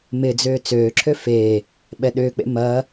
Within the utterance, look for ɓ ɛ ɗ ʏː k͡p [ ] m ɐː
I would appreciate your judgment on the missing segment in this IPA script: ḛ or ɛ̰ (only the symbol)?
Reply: ḛ